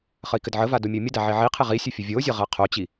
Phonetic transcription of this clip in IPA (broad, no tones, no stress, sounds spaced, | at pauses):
χ ə i̯ k ɘ d ʕ ə v a d o mʲ ə u̯ mʲ ə d a ʕ e ʕ i qʰ e ʁ i sʲ ɘ fʲ ə vʲ o zʲ ə ʁ a qʰ o t͡ɕ i